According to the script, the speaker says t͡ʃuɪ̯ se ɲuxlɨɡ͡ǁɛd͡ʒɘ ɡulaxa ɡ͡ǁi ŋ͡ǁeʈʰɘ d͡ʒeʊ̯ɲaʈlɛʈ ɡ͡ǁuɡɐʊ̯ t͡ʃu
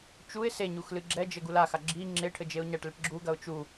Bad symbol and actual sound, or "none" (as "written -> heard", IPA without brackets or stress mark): none